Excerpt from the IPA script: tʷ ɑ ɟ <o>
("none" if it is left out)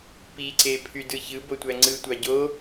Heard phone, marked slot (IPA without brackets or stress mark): o